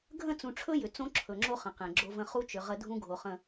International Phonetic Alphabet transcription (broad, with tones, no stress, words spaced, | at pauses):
ɡʱə̃˦˨t͡sũ˨ʈ͡ʂʰɵ˦ jʏ˨t͡sõ˦ǁʰɵ˨ŋ͡ǁo˦ χə̃˨qẽ˨ɡ͡ǁo˦və̃˦ χu˦t͡ʃʏ˨ ʁə˦dʱũ˦ ɡʱo˨χə̃˨